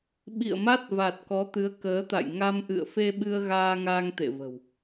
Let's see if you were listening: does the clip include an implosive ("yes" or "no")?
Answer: yes